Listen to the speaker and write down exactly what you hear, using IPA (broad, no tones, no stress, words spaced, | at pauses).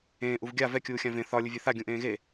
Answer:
ẽː ʔuvɡʲa vɛ kʲuːxʲãvẽ θɒ lʲʊvʲeθa ɡʲũʔẽːɣe